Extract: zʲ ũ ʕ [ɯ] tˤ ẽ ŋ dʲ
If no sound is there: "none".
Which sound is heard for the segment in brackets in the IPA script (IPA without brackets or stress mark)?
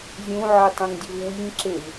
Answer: ɯ